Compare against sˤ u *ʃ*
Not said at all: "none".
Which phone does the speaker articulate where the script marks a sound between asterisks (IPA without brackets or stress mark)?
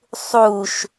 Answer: ʃ